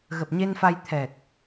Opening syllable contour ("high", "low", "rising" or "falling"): low